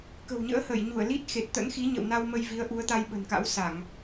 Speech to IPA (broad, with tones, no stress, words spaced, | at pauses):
kə̤˨˩wɲə̰ː˧˥hə˧˩j ɲu˧˩ə̯li˦˥t̚ xe˨˩t̚t̪ə̰˧˥nxi˨˦ɲə̰˧˨w na˧w mə˧jvi˨˦ə̯ʔu˨˦ə̯t̪a˧j ɓə̤˨˩nka̰˧˥wsa˧˩˨ŋ